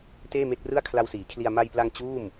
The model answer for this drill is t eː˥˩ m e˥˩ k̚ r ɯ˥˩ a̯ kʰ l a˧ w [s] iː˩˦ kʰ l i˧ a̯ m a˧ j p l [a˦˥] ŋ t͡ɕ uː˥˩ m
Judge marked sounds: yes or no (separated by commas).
yes, no